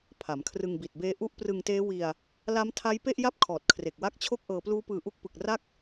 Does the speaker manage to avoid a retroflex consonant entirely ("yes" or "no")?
yes